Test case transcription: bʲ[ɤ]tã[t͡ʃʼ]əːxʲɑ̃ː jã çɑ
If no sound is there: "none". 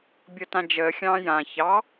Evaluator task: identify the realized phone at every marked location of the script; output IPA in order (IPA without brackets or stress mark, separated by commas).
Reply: ɤ, d͡ʒ